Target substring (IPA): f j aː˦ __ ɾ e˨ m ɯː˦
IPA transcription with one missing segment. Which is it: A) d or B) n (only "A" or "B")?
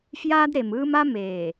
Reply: A